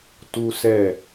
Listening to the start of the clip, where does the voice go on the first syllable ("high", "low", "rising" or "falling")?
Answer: high